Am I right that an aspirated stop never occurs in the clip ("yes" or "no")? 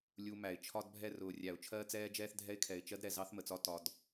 no